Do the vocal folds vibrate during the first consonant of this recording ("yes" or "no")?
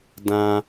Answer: yes